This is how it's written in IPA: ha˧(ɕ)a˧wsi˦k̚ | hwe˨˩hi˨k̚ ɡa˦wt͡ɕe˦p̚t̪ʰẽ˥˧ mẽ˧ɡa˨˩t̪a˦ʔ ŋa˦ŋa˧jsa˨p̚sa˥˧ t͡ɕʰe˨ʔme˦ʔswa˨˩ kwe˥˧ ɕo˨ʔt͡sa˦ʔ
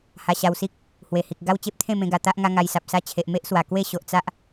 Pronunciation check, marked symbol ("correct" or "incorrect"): correct